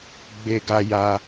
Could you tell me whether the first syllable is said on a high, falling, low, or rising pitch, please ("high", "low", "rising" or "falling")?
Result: high